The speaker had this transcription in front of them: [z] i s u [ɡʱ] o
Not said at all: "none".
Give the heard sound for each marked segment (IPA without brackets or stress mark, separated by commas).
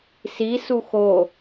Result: s, x